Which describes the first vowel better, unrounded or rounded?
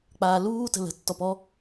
unrounded